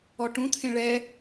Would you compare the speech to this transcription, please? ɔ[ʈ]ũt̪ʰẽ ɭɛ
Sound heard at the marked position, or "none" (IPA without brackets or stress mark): ʈ